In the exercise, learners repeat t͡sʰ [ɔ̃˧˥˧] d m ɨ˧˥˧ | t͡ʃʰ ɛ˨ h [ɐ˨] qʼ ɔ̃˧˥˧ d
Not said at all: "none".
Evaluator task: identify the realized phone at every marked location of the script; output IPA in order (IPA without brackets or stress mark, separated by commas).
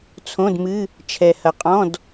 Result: õ˧˥˧, ɐ˨